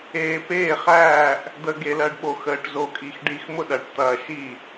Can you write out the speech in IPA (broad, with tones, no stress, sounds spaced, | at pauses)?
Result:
eː˨ p eː˥˩ χ æː˥˩ ʔ | d̪ əː˨ ɡ e˨ l ɜ˨ ɖ ɓ o˨ x əː˨ ʈ z o˨ kʼ i˨ x ɖ i˨ x m ʊ˥˩ ɗ ɐ˨ ʈ t̪ ɐː˨ ʃ i˥˩